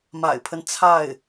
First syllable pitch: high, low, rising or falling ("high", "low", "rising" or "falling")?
low